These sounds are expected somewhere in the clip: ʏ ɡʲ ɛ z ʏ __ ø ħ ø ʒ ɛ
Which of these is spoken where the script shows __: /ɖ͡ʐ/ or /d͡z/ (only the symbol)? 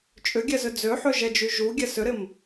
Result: d͡z